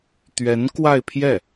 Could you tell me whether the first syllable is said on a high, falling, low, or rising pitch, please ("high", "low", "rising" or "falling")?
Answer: rising